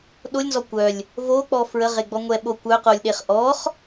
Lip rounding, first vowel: rounded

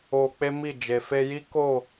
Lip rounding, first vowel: rounded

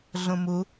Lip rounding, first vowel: rounded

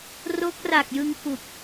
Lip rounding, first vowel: rounded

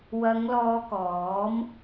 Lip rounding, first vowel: unrounded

